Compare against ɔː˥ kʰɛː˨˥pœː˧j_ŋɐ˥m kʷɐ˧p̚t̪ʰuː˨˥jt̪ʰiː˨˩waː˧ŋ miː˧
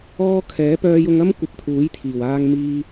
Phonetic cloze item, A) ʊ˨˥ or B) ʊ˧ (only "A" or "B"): B